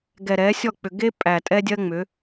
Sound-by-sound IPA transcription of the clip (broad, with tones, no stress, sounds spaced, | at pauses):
ɡ ɛ˨ ɾ ɛ˨˦ sʲ ɔ˦˨ k͡p ʏ˨ ɡ e˦ pʼ æ˨ tʼ ɛ˦ dʲ ɜ˦ ŋ͡m ʏ˨˦